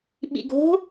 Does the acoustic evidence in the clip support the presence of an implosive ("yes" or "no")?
yes